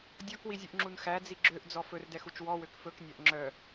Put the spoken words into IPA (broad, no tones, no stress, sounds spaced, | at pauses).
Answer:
dʲ ɔ k w i zʲ ʉ ʔ ŋ͡ǁ u n x æ d͡z i ɡ͡ǁ ø ʔ d͡z ɔ f ɵ r d ɛ x u t͡ʃ w ɔ w ø k f ɵ k nʲ æ ʔ ŋ͡ǁ œ